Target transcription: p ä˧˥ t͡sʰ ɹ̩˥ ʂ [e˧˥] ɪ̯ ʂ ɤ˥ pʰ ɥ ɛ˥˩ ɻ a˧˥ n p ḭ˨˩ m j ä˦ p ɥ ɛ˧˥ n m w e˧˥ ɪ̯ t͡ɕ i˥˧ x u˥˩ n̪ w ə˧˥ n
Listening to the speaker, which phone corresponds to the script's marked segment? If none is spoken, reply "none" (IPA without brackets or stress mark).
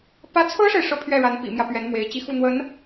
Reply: e˨